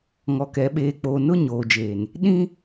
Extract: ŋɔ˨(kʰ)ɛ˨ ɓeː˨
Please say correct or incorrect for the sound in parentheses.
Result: incorrect